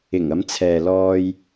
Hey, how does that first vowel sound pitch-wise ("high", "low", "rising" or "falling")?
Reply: low